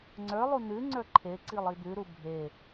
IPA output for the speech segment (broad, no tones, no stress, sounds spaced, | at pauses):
ŋ͡ǀ ə˞ lˠ u n ʉ ŋ͡ǀ ə˞ ǃʰ e ǀ i lˠ i d̪ ʉ ɾ u bʱ e